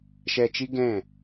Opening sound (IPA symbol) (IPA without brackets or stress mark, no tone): ʃ